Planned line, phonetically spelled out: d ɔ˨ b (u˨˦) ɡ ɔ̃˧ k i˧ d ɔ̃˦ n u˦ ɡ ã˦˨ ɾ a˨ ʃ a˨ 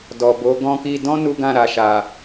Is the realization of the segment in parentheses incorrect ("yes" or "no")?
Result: yes